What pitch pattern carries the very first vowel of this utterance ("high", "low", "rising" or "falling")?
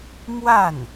falling